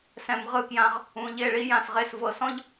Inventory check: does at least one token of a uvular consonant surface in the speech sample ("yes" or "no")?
yes